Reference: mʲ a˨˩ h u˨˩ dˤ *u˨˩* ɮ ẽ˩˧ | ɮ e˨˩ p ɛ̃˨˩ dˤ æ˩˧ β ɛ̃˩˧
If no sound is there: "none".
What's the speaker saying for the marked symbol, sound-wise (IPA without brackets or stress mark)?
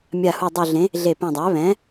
u˨˩